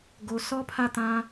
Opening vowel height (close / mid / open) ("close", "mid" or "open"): mid